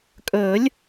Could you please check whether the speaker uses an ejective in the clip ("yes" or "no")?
yes